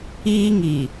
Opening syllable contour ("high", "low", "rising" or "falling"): high